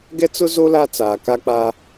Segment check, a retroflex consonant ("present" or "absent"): absent